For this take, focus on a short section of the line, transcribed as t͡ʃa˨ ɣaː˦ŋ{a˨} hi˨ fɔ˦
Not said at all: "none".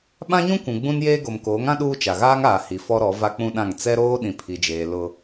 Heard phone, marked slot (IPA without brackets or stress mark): aː˨